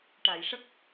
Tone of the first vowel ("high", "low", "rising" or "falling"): low